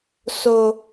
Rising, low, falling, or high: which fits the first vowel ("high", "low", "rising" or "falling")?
low